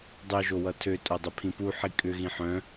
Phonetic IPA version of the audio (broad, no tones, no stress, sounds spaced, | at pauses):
dˤ œ ʒ o w ʌ tʰ ø tʼ o dˤ ʏ pʰ ĩ p u ħ i kʼ ʏ ɣ ĩ ħ œ̃